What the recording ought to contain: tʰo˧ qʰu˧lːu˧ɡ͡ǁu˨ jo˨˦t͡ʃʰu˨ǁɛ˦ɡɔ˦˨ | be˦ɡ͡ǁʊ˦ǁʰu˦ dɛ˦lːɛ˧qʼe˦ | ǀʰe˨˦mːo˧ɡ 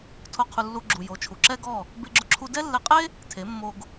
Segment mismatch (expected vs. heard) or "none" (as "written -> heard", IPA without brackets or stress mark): ǀʰ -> tʰ